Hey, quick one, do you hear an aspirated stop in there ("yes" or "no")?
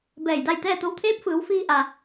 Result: yes